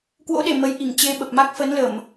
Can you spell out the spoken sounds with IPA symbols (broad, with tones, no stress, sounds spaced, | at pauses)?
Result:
k w o̰˧˥ ɗ e˧˩ m ə˨˦ j ʔ i˧˩ ŋ t͡ɕ e˧ ɓ ə˨˩ p̚ m a˦˥ k̚ f ə˨˦ n l ə˧˩˨ m